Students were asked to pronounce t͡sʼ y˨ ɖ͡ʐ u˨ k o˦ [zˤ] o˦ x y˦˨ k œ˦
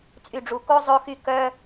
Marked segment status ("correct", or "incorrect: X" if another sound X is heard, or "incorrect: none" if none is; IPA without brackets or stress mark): correct